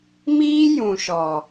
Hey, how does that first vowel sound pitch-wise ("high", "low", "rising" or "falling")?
high